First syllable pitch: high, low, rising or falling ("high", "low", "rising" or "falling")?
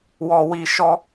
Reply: low